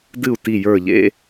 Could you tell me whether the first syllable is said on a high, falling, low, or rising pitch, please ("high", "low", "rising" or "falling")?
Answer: falling